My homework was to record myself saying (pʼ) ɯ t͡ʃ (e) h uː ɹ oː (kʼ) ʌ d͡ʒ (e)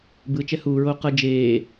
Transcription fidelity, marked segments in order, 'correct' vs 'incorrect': incorrect: b, incorrect: ɛ, incorrect: q, incorrect: eː

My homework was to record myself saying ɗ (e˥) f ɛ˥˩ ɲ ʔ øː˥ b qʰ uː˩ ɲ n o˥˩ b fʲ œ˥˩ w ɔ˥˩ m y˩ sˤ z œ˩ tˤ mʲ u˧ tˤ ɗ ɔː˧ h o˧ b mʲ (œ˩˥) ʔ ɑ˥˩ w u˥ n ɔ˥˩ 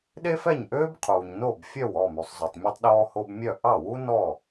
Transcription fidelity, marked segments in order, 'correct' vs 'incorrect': correct, incorrect: œ˥˩

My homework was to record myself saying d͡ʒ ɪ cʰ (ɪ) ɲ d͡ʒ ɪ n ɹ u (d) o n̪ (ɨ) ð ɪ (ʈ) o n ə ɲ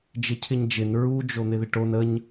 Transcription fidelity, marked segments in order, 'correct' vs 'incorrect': correct, incorrect: d͡ʒ, incorrect: ɪ, correct

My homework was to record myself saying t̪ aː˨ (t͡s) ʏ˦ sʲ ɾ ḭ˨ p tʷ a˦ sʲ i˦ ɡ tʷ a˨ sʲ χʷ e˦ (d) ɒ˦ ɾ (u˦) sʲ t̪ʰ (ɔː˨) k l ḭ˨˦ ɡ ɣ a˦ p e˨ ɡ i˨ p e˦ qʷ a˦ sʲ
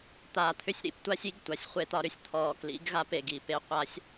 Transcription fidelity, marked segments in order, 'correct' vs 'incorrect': incorrect: t̪ʰ, incorrect: t̪, incorrect: ʏ˦, correct

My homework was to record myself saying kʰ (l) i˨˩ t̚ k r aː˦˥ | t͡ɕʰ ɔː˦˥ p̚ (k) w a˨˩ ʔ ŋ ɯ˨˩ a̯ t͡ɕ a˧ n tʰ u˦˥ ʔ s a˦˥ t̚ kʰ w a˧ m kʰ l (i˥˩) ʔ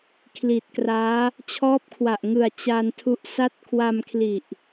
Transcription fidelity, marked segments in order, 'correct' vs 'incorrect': correct, incorrect: kʰ, incorrect: i˨˩

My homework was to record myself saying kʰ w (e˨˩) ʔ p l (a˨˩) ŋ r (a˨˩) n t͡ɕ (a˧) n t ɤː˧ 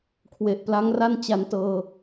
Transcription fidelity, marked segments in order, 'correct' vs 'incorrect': correct, incorrect: a˦˥, incorrect: a˥˩, correct

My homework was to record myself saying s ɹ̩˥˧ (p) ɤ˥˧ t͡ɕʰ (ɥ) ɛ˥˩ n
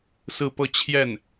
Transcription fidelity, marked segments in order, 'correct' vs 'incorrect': correct, incorrect: j

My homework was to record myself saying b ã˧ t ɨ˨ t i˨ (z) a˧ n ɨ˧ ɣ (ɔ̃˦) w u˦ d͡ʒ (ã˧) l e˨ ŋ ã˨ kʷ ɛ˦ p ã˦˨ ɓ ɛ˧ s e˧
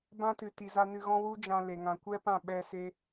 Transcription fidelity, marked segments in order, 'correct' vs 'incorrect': correct, correct, correct

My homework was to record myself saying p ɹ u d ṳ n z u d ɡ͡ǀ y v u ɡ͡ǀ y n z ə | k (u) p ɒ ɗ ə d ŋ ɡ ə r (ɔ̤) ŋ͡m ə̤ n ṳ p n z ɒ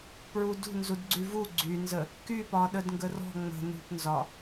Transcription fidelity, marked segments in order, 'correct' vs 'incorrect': incorrect: y, correct

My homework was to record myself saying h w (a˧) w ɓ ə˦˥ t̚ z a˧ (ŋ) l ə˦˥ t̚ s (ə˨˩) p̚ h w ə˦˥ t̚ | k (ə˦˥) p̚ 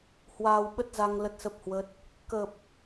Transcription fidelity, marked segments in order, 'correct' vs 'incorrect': incorrect: aː˧, correct, incorrect: ə˦˥, incorrect: ə˨˩

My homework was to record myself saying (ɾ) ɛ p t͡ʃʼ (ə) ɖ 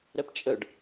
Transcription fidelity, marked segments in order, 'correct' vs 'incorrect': correct, correct

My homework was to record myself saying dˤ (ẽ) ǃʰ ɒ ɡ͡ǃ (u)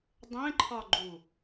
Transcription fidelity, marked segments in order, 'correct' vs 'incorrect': correct, correct

